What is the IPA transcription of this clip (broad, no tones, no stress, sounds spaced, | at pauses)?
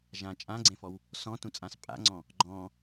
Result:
ʒ ã t͡ʃʼ ã ɡ͡ǀ ẽ f ɔ w | s ɔ̃ t ũ t͡sʼ ã s pʼ a̰ ŋ͡ǀ ɔ̃ | ɡ͡ǃ ɔ̃